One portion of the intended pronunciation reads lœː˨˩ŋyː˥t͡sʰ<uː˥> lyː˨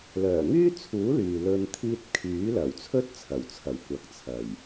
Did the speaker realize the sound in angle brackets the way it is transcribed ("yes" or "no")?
no